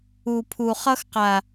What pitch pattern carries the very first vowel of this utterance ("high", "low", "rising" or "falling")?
low